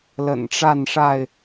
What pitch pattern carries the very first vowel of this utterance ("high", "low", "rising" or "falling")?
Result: low